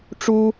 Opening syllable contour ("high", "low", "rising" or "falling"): high